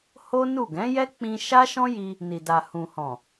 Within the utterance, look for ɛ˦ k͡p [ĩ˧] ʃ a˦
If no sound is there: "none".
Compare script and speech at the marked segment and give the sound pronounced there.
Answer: ĩ˧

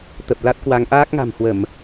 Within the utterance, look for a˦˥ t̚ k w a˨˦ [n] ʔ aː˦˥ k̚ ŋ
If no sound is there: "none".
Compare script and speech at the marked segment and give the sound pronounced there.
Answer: ŋ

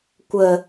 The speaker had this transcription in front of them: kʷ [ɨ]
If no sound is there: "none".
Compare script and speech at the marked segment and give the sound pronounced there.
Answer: ə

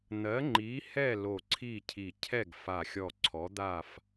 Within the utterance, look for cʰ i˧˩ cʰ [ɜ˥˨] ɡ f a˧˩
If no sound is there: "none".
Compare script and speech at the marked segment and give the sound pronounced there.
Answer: ɛ˥˨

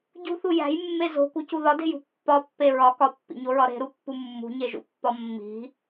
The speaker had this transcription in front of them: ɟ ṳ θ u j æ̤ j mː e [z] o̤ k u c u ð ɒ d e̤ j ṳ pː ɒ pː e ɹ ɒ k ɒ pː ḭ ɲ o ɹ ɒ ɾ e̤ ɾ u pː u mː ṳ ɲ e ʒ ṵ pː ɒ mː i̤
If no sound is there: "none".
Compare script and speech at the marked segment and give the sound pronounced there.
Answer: z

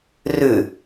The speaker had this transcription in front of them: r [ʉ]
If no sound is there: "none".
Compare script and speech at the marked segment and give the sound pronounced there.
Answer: ʉ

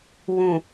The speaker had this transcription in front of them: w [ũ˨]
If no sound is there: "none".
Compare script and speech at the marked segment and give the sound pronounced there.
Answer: ũ˨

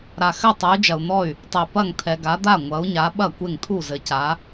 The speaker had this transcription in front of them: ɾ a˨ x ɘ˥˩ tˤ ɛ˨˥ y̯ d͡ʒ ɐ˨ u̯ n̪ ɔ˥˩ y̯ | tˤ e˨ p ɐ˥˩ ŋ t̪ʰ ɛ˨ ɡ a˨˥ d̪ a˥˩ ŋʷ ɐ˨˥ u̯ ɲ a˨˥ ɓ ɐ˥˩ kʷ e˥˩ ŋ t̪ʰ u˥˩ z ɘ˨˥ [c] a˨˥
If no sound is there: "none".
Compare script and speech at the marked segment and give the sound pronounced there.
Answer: c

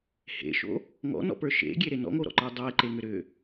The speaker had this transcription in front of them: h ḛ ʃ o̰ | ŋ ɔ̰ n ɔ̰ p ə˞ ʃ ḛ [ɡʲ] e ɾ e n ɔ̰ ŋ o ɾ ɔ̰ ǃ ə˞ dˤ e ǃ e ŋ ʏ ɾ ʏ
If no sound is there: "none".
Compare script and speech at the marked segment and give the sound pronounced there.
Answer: ɡʲ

